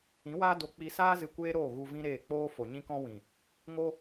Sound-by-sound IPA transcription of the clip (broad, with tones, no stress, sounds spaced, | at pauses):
ĩ˨˦ w aː˦ d o˧ k͡p i˧ s aː˦ z ɨ˧ kʷ eː˦ ɾ oː˦˨ ɣ u˧ v ĩ˦ ɾ eː˦˨ k͡p oː˧ f o˨ ɲ ĩ˧ k ɔ̃˧ w ĩ˨ | ŋ o˦